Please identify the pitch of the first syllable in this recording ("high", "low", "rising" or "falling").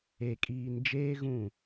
low